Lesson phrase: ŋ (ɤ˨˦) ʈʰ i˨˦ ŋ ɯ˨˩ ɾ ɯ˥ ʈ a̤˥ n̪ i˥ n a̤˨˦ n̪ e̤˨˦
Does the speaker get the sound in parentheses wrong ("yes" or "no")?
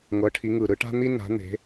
no